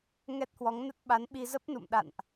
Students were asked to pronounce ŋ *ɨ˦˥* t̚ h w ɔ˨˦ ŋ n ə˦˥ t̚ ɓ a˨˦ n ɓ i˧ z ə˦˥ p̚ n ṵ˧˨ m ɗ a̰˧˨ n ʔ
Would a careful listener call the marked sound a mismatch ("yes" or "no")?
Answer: yes